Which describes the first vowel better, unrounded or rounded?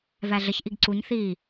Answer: unrounded